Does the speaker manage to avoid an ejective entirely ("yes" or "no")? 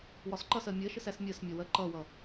yes